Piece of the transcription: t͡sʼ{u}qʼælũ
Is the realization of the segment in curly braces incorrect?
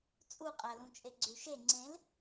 no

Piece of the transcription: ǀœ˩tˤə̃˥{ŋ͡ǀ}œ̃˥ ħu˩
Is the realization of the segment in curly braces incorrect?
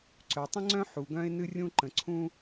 no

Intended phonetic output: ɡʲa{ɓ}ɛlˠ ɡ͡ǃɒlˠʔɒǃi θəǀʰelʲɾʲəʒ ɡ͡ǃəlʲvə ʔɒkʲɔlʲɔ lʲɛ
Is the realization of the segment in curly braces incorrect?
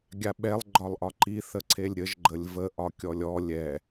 no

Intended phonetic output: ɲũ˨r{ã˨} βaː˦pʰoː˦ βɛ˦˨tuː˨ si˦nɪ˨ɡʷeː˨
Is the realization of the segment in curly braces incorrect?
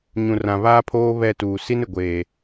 no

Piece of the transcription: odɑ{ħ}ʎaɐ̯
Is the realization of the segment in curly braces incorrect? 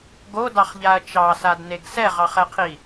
yes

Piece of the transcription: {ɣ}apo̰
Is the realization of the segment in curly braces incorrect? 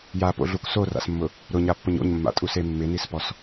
yes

